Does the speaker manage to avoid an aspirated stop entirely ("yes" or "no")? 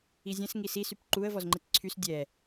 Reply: no